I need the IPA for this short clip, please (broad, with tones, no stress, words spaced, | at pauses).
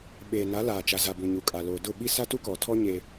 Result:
ɓeː˨na˨˦ laː˨t͡ʃa˨za˨ bũ˨ɲu˨ kʼa˨ loː˨dʊ˦˨ɓi˦ sa˦tu˦kɔ˨tʰɔ˦ ɲe˦